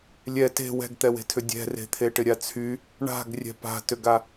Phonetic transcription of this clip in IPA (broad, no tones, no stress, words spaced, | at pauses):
lʲɛ te̤ wɛ̤ɡt̪ɛwe̤tʰʏ dʲɛ̤re̤t̪ʰe ʈɪɾʲat͡sʰy | ɳa̤ɡ rʲɛ̤pa̤tʏɡa